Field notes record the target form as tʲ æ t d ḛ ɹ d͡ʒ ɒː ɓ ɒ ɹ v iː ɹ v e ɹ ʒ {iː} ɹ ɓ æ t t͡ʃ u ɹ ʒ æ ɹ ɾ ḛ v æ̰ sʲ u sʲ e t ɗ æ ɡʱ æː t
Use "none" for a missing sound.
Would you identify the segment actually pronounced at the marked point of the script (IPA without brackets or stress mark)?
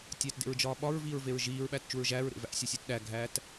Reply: iː